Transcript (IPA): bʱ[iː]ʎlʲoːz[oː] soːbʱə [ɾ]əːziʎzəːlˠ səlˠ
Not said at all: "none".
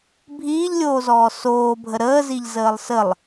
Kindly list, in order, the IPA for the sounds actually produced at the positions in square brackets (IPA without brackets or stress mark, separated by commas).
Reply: iː, ɔː, ɾ